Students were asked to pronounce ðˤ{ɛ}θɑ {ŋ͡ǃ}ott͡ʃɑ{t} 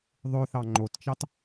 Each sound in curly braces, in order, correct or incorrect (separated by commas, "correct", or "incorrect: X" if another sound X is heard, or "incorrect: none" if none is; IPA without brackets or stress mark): incorrect: ø, correct, correct